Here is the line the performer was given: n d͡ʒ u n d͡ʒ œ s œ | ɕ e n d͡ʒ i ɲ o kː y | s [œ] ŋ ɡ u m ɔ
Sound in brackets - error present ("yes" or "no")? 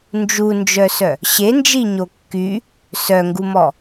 no